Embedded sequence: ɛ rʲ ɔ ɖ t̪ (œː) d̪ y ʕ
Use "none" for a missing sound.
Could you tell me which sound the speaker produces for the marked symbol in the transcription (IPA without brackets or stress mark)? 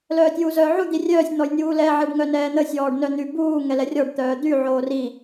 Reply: œː